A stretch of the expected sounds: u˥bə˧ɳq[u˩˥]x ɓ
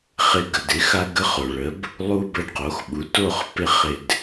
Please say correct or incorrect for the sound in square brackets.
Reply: incorrect